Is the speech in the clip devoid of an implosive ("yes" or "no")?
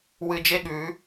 no